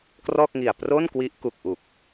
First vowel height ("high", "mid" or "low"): mid